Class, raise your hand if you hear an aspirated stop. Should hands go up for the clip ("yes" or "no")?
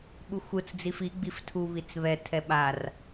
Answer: yes